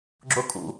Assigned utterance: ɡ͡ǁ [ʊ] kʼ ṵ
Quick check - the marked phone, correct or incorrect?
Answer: correct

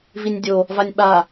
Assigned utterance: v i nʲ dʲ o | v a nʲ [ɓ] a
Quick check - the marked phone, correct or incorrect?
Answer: correct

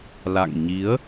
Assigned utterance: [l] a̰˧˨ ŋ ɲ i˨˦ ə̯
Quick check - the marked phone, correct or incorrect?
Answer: correct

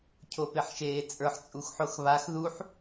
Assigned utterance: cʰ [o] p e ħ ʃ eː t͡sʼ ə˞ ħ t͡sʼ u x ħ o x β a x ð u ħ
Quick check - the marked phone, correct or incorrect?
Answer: correct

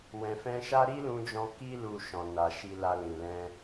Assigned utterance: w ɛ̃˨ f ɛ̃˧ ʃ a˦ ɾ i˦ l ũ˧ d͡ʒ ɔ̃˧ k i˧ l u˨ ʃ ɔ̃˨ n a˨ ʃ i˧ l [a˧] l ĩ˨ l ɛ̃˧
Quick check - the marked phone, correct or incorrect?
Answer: correct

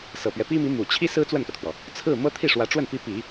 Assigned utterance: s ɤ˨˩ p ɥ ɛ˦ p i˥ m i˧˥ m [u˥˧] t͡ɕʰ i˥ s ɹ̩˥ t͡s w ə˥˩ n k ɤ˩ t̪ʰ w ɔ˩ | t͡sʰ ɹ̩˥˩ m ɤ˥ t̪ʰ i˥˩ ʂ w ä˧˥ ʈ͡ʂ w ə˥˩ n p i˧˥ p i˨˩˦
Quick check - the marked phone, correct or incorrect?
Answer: incorrect: u˨˩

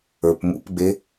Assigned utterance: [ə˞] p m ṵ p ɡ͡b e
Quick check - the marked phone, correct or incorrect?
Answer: correct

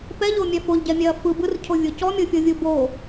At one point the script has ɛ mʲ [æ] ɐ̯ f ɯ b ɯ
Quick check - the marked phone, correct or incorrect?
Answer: incorrect: ɛ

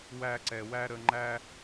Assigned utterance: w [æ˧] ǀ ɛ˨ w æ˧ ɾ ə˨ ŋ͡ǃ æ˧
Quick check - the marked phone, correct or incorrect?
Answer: correct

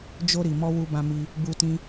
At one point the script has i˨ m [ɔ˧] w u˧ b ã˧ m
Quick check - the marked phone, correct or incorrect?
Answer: correct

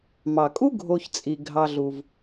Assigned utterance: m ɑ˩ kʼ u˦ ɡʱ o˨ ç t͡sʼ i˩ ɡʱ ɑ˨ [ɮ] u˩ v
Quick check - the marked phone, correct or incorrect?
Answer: correct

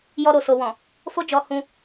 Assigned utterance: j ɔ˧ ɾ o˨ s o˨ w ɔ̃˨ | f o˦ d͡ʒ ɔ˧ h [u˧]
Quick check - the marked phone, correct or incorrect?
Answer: incorrect: ũ˧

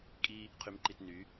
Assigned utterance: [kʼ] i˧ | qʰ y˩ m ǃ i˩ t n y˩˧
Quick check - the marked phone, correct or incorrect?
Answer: correct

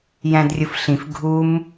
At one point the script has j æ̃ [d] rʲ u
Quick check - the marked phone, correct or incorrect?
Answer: correct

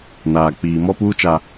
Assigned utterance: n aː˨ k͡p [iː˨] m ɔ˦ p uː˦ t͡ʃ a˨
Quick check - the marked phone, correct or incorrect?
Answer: correct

